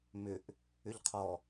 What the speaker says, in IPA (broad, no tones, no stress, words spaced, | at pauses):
mʏʔ | ʏʎqʰɔ